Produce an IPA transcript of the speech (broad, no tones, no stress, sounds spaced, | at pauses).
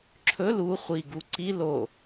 ǁʰ ɵ l u χʷ i ɡ u ǀ i l o